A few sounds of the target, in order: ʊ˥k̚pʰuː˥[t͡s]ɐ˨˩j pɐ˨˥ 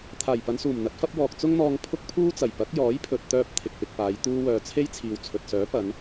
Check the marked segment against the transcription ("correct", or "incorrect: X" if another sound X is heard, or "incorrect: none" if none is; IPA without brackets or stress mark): correct